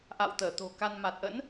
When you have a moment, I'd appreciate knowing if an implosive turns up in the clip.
no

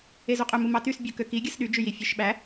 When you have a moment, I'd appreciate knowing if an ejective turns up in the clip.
yes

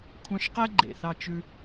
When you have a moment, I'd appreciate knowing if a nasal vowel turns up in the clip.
yes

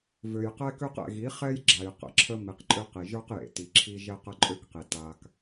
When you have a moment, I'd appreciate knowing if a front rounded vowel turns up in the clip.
yes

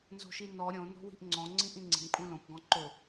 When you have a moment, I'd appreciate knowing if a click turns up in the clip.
yes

